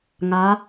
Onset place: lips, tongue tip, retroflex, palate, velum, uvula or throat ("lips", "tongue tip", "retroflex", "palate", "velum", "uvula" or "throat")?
velum